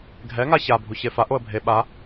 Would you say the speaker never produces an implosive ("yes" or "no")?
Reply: no